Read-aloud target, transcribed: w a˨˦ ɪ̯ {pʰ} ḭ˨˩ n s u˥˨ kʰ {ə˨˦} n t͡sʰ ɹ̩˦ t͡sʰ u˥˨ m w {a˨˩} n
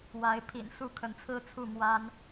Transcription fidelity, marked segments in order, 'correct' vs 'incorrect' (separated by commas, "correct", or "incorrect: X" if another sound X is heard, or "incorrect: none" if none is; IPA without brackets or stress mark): correct, correct, incorrect: a˦